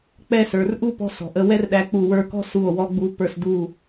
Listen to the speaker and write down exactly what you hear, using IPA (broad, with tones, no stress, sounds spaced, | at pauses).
k͡p ɛ˥˧ s ə˞˩˧ r ʔ u˥˧ p ɔ̤˧ s ɔ̤˩˧ ʔ ə˥˧ w ɛ˥ r ɗ æ˧ k͡p u˧˩ w ə˞˧˩ k ɔ̤˥˧ s u˧˩ o̯ w ɔ˧ ɡ͡b u˧ p ə˞˧˩ s d u˧˩